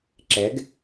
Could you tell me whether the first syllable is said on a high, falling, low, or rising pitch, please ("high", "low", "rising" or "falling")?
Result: rising